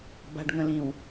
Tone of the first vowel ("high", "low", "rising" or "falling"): low